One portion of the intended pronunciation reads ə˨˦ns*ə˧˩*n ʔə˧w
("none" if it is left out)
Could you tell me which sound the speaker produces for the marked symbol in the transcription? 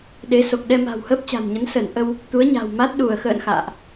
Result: ə˧˩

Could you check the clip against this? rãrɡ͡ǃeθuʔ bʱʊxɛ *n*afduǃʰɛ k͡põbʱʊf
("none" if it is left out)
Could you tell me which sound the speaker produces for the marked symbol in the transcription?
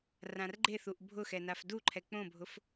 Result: n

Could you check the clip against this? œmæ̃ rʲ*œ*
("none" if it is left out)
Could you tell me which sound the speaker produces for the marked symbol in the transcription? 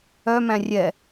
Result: ɛ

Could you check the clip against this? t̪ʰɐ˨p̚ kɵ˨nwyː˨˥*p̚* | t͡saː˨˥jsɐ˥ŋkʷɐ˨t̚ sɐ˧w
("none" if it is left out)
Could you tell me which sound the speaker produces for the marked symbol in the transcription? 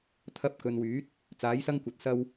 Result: t̚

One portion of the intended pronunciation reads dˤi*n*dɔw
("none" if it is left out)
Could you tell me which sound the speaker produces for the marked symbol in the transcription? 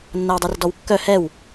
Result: r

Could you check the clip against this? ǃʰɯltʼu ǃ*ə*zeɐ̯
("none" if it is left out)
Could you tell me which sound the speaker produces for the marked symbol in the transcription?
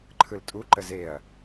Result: ə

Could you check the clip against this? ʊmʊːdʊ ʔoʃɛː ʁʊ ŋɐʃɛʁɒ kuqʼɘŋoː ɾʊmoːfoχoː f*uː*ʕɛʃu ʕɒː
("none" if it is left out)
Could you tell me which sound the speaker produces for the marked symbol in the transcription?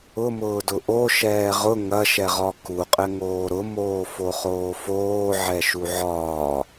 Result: oː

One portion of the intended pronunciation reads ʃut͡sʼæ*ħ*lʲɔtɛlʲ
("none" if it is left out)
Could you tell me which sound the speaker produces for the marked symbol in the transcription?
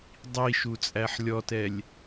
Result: ħ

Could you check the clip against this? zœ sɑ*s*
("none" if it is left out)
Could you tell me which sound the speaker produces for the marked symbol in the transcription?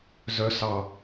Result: none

